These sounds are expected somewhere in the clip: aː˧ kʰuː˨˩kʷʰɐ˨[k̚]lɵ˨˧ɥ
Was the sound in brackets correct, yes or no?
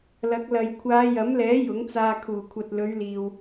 no